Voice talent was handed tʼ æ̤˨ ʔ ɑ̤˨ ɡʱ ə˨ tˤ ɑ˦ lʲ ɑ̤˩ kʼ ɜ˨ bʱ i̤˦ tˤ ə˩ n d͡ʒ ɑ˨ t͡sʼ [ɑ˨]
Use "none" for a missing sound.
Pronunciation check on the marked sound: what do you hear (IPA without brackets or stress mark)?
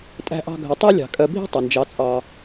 ɑ˨